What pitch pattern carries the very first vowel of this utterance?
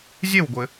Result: falling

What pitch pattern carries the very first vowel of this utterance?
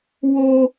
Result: high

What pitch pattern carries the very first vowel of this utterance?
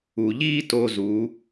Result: low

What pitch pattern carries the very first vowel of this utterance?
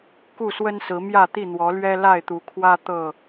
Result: falling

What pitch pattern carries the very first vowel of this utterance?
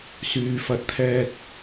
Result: low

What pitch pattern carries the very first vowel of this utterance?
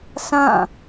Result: falling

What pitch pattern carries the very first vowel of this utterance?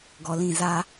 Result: low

